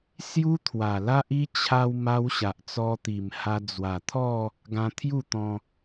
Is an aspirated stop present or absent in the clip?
present